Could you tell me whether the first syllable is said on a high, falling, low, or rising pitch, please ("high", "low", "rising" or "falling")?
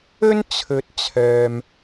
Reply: high